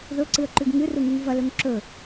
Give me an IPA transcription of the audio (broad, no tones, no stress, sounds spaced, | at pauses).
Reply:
ð ɵ ǀ ɨ ə̯ ǃ ʉ ɡ ŋ ɨ r u ŋ u ŋ v ɐ l ɵ ŋ ǁ ɵ